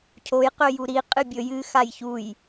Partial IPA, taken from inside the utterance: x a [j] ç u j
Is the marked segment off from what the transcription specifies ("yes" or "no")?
no